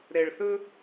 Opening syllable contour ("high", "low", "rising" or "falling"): low